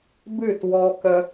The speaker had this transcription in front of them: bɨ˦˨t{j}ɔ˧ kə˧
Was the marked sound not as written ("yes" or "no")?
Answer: yes